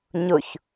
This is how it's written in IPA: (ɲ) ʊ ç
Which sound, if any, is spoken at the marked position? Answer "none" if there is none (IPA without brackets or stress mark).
ɲ